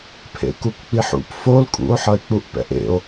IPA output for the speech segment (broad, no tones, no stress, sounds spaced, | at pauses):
pʰ ḛ k u k k͡p i ħ ṵ p f o l kʼ ṵ o̯ ħ ʌ e̯ k͡p u ʔ p ɛ̰ ʔ ḛ o̯